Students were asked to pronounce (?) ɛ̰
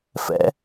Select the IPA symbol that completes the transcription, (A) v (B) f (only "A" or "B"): B